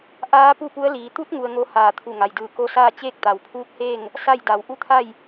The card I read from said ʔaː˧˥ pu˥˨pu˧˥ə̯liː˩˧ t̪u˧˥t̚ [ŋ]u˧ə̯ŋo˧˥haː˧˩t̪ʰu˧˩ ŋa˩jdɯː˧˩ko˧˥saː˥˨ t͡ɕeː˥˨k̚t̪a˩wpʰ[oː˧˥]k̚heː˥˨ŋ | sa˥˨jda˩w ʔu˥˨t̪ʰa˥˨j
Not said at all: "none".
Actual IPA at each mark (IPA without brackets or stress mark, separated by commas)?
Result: ŋ, uː˧˥